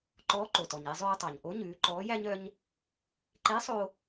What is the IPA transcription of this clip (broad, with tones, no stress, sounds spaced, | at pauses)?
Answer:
ǃ ɔː˧˥ ǃ o˩ t ɔ˩ ɲ e˧ zˤ øː˧ tˤ ɑ˩ ɲ ʔ o˧˥ ɲ ʉː˩˧ ǃ ɔː˧˥ j æ˥ ɲ œ˥ ɲ | ǃ e˧˥ sˤ o˥